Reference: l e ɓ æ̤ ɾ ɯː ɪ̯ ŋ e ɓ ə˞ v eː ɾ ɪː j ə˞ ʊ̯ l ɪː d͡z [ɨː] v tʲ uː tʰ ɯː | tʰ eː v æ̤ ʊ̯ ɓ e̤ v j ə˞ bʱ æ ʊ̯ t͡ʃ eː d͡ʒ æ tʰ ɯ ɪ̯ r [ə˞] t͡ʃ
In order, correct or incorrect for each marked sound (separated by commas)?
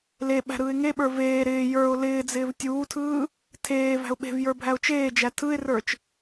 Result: incorrect, correct